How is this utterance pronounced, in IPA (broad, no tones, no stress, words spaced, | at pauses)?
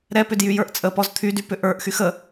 ɾɛpʏd jyjə˞ʔt͡sʼəpɔz t̪ʰydy pʏʔə˞ʔxyx ə